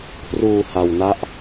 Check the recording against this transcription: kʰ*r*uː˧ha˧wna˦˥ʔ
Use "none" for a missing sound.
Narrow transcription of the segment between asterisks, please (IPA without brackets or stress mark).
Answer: r